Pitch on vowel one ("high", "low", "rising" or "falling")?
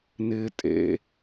low